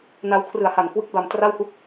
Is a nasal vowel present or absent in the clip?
absent